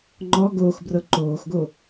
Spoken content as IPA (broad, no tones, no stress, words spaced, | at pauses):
ŋ͡ǃɔ ɡoːxbrɤ ǃoːxɡo